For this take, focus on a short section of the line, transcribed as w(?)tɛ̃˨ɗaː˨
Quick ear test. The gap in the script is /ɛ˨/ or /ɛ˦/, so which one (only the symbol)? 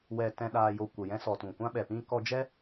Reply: ɛ˨